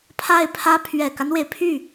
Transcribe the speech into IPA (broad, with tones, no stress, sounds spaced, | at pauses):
pʰ a˥˩ ɪ̯ pʰ ä˥ pʰ ɥ ɛ˨˩ k a˦ n w e˩ ɪ̯ pʰ y˥˩